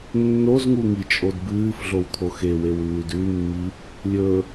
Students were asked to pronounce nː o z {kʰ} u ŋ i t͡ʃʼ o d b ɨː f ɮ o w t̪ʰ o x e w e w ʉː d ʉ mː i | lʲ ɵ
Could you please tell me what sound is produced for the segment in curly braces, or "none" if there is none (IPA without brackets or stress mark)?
ŋ